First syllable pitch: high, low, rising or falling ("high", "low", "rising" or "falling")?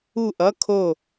falling